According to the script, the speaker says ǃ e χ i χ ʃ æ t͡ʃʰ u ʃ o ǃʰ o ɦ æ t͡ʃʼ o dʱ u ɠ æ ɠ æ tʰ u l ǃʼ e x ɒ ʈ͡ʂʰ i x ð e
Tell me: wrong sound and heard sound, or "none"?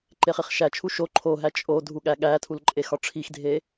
ð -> dʱ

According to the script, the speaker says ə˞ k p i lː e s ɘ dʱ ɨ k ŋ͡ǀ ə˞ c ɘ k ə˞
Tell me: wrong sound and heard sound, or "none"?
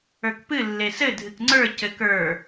i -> ɨ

